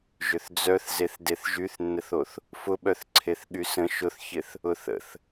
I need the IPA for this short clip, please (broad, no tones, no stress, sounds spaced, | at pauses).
ʒ ʏ θ d͡z œ θ z e θ d e θ ʒ y θ nː ə θ o θ | f ʊ ɓ œ θ ǀʰ e θ ɠ y s ə̃ ʃ ʊ θ ç ɪ θ | ʊ θ ə̰ θ